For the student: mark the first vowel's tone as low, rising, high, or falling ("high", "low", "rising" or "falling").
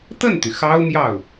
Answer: falling